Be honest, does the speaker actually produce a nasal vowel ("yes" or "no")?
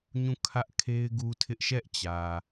yes